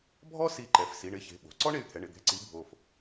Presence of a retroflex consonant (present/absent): present